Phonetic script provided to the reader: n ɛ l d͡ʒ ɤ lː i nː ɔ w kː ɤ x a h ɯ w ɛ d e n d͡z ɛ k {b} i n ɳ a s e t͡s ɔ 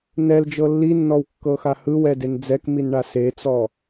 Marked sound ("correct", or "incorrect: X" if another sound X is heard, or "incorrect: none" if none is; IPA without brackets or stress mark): incorrect: m